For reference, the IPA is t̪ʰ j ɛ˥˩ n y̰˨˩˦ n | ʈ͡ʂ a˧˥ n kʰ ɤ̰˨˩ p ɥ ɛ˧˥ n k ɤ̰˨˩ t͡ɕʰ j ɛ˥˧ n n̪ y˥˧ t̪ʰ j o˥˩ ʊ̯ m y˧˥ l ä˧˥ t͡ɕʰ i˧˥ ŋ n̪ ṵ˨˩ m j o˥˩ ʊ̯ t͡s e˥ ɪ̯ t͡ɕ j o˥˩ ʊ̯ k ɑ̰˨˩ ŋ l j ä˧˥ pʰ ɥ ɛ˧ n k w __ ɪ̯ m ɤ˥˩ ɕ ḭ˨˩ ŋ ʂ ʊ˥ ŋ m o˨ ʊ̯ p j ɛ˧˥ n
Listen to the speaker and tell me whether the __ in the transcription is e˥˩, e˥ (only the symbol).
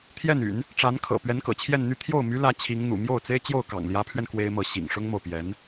e˥